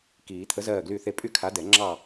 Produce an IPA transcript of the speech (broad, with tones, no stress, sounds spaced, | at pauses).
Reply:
k iː˨˩˦ t̪ʰ ə˨˥ z ɜː˥˨ ɡ l y˥˨ θ e˥˨ pʼ y˥˨ kʰ a˨˥ d ɛ˨˩˦ ŋ͡ǁ ɑː˥˨